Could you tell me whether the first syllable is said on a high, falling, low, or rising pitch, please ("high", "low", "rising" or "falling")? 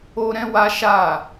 high